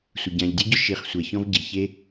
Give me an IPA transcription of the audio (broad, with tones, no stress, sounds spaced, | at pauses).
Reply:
sʷ ɪ˨ ɟ ã˨ ʎ dʲ ʊ˦ ɟ ʊ˦ ʃ i˨ χ sʷ ɛ˨ ç ɔ̃˧ v ɟ i˨ ç e˦